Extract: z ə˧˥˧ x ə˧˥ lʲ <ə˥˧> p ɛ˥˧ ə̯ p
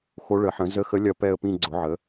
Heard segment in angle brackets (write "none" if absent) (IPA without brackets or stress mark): ɐ˥˧